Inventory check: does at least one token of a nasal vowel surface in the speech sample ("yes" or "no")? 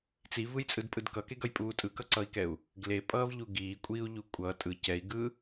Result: no